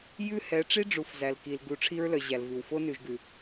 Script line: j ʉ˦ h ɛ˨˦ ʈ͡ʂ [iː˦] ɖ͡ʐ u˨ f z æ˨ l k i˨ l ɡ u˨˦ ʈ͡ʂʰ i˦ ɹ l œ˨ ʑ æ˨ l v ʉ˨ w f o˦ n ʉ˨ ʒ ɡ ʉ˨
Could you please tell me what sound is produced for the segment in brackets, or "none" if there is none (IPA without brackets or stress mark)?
i˦